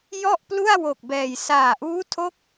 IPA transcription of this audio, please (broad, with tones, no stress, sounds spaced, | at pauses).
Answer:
j ɔ˥˩ ʔ p l u˥˩ a̯ w o˨˩ k̚ b ɛː˨˩ j s aː˨˩ ʔ uː˦˥ tʰ o˦˥ k̚